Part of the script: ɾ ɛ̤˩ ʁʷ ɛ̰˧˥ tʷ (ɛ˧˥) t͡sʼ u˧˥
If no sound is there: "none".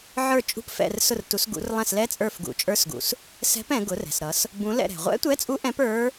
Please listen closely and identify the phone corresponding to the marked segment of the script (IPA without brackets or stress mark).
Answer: ɛ˧˥